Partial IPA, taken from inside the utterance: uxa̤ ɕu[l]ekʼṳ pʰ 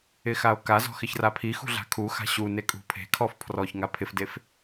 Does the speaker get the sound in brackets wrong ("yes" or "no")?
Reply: yes